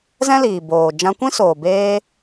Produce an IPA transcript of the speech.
z ɛ̃˦ l iː˨ b oː˨ d͡ʒ ã˧ kʷ ĩ˦ s oː˨ b eː˧

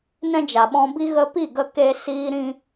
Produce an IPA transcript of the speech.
n ɛ̃˦ d͡ʒ a˨ ɓ ɔ̃˧ b i˦ ɣ ə˦ p i˦˨ ɡ ə˧ k e˧ s iː˧ ɾ ĩ˦

